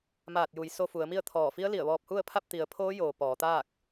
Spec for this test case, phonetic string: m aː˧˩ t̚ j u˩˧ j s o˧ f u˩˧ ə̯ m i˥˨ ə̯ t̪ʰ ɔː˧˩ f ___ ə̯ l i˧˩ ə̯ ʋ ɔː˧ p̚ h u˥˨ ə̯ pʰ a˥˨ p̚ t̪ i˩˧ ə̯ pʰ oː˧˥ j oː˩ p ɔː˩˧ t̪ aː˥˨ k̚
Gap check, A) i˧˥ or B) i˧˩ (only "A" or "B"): A